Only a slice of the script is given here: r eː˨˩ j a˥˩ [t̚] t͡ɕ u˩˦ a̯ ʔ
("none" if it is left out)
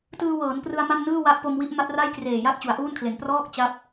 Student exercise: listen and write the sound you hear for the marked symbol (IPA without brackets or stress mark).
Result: t̚